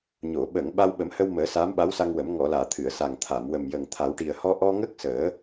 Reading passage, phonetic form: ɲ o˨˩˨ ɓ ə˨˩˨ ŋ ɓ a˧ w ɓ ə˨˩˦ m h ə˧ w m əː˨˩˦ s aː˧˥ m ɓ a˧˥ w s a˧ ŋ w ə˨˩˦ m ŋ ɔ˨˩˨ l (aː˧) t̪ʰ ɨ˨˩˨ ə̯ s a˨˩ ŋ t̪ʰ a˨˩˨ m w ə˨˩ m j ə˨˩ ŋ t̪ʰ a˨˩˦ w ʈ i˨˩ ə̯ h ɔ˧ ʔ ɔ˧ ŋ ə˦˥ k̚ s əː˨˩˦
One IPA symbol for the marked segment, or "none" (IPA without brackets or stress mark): aː˨˩˨